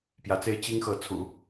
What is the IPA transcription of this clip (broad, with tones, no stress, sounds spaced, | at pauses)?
p j ä˧˥ t͡s e˥ ɪ̯ t͡ɕ i˥ ŋ x ɤ˧˥ t͡sʰ ṵ˨˩˦